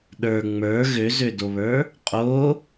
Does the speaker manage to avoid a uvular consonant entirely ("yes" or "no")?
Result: no